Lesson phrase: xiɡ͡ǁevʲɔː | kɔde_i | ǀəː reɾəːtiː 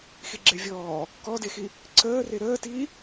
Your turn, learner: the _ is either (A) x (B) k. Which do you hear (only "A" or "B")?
A